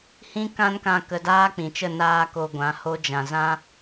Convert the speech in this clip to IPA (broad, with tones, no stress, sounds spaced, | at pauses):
h ĩ˦ k ã˦ n k ã˧ k ə˧ d aː˦ k͡p ĩ˨ t͡ʃ ə˦˨ n aː˦ k o˧ ɡʷ ã˨˦ h o˦ d͡ʒ ã˨ z ã˦